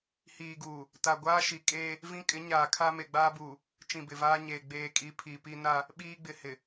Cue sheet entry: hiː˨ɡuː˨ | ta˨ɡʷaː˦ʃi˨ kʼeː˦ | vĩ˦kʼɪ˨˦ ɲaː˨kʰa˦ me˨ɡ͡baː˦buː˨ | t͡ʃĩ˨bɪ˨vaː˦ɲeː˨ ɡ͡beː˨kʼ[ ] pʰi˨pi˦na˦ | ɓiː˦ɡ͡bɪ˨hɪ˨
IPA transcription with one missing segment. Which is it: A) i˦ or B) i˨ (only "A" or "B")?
B